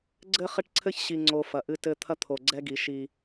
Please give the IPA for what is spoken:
ɡ͡ǀ ɘ˦ χ ɘ˦ ʈ ǀʰ ɘ˦ ç ɕ i˨ ŋ͡ǀ o˨ f ɐ˨ ʔ ɨ˦ t ɘ˦ t̪ʰ ɐ˦ t̪ʰ o˨ ɡ͡ǀ ɛ˦ ɡ i˨ ʃ i˦

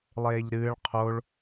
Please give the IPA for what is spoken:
lˠ eː ʎ ɾ ɨː ɭ qʰ o ɭ

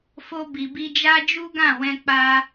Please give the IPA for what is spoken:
f o˧ b i˨ b i˧ d͡ʒ a˦ d͡ʒ u˦ ɡ ã˦˨ w ɛ̃˧ k͡p a˧

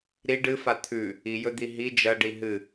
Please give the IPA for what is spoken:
ɾ i ɖ ɨ f a t̪ʰ ʉ | i j ɵ d̪ i ɦ i d͡ʒ ɐ ɖ i ɦ ɨ

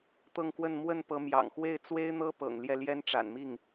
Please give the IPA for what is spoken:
t̪ ɤ˥˧ ŋ k w ə˥˧ n m w ə˥˩ n p ɤ˧˥ m j ɑ̰˨˩ ŋ x w e˥˩ ɪ̯ t͡s w e˥ ɪ̯ n̪ ɤ˥ p ɤ̰˨˩ ŋ l j ɛ˥˩ l j ɛ˥ n ʈ͡ʂ a̰˨˩ n m i˥˩ ŋ

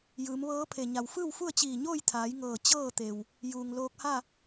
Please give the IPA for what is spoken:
j ɯː˩˧ m ʋ ɤː˧˥ pʰ e˩ ɲ a˩ w f ɯː˥˨ w f u˥˨ ə̯ t͡ɕ iː˧˩ ɲ oː˥˨ j t̪ʰ aː˩˧ j ŋ ɤː˧˩ t͡ɕ ɤː˥˨ t̪ e˩ w | j uː˩ ŋ l oː˧ k̚ h a˥˨

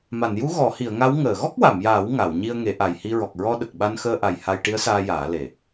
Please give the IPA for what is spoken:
m a˨˩˨ n j u˧˥ ɣ ɔ˨˩˦ h i˨˩˨ ə̯ ŋ a˧˥ w ŋ əː˨˩˨ ɣ ɔ˦˥ k̚ w a˨˩˨ m j aː˨˩˦ w ŋ a˨˩˨ w ɲ i˧ ə̯ ŋ e˨˩˦ ʔ a˨˩ j h i˧ ɹ ɔ˨˩ k̚ ɹ ɔ˧ ɗ ə˨˩ k̚ ɓ a˧ n x əː˧ ʔ a˨˩ j h a˧ j ʈ i˧˥ ə̯ s aː˧ j aː˨˩˦ l e˨˩

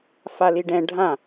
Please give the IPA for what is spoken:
f a l i ɖ ɛ̃ ɖʱ ã

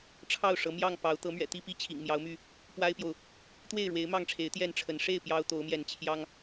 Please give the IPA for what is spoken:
ʈ͡ʂʰ ɑ˥˨ ʊ̯ ʂ ɤ˨˦ m j ɑ˥˨ ŋ p ɑ˨˦ ʊ̯ t̪ ɤ˨˦ m ɥ ɛ̰˨˩ t̪ i˥˨ p i˥˨ t͡ɕʰ ḭ˨˩ ŋ m j ɑ˨˦ ʊ̯ m y˥˨ | p w a˦ ɪ̯ p j o˨ ʊ̯ | t̪ w e˥˨ ɪ̯ ɻ w e˨˦ ɪ̯ m ɑ˥˨ ŋ ʈ͡ʂʰ e˨˦ ɪ̯ t̪ j ɛ˥˨ n ʈ͡ʂʰ ə˨˦ n ʂ e˥˨ ɪ̯ p j ɑ˦ ʊ̯ t̪ o˨˦ ʊ̯ m j ɛ˨˦ n t͡ɕʰ j ɑ˦ ŋ

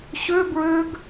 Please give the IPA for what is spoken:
ɕ ø b ɹ ø ɡ

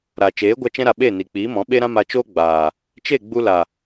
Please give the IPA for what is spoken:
ɾ aː˨ t͡ʃ eː˨˦ ɡʷ a˧ t͡ʃ ɛ̃˧ ɾ a˨ ɓ e˦˨ n i˨ k͡p iː˨˦ m ɔ̃˨˦ ɓ e˦ ɾ ã˦ m a˧ t͡ʃ oː˦ ɡ͡b aː˨ | t͡ʃ e˦˨ ɡ͡b u˧ l a˨

